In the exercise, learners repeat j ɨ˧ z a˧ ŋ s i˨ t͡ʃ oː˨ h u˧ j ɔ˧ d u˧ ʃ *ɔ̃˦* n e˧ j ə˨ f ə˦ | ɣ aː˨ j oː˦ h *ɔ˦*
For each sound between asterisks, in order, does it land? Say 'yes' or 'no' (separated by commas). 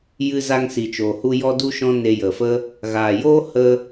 yes, no